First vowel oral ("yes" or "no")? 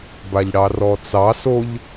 yes